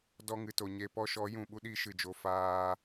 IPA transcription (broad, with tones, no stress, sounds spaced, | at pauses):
d ɔ˧ ŋ ɨ˨ t o˨ ɲ e˨ p ɔ˧ ʃ ɔ˨˦ j ũ˨ ɓ u˦ ɗ i˦ ʃ ɨ˨ d͡ʒ o˧ f aː˧